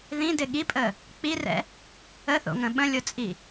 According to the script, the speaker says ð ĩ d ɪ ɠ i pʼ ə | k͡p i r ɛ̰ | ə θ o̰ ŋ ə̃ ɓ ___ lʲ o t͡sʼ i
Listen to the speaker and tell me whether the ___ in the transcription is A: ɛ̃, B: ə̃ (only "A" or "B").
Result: B